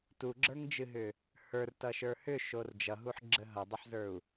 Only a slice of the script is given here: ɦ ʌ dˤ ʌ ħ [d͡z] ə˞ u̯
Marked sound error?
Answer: yes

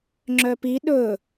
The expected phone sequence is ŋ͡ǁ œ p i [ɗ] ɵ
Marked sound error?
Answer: no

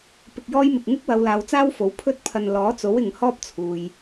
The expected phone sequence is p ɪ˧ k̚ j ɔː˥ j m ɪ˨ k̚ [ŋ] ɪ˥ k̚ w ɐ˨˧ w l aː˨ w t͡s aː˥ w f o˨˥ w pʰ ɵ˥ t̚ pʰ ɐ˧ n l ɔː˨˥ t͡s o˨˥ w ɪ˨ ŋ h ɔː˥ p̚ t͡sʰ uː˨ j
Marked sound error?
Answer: no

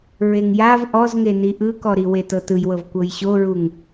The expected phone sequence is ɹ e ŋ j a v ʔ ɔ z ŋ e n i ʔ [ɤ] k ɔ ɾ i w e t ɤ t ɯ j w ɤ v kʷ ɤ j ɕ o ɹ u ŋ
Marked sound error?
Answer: yes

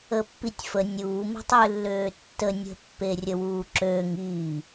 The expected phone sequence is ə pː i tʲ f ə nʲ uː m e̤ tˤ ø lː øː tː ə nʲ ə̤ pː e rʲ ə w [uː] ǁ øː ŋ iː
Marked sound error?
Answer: no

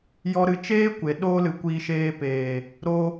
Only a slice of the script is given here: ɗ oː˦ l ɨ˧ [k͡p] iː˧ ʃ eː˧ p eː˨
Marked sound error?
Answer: yes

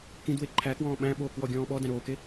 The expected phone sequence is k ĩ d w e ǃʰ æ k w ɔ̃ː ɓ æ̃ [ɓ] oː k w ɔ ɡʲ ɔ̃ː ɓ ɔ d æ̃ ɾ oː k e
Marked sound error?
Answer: no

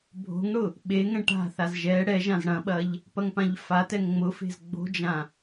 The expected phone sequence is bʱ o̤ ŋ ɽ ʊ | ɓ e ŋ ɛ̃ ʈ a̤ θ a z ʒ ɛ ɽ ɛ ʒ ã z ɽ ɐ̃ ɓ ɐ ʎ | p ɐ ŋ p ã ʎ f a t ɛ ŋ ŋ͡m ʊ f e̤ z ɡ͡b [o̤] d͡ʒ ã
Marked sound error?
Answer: no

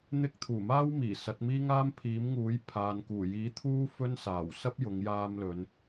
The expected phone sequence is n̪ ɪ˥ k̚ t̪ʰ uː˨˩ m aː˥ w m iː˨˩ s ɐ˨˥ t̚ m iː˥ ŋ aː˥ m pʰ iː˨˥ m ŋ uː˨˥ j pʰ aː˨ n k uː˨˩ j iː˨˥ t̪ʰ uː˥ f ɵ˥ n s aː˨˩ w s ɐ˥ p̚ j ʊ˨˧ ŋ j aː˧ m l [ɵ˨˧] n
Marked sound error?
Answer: no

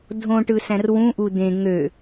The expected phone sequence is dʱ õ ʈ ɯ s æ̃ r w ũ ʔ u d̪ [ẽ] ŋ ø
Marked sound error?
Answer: no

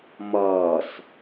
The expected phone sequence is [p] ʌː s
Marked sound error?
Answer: yes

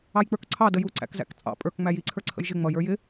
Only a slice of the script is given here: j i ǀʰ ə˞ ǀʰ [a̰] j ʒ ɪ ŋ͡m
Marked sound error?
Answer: yes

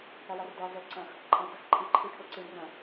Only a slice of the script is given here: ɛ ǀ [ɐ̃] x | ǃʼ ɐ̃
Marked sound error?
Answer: no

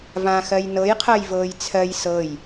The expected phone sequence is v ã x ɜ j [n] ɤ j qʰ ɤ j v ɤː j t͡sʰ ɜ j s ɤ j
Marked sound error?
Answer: no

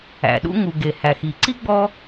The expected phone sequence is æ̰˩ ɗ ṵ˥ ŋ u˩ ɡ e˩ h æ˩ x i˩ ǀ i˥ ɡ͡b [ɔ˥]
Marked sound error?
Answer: no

